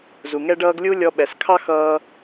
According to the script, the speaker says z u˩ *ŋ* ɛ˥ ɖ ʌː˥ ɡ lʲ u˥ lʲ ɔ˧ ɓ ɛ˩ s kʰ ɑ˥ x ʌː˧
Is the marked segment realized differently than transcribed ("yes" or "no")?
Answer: no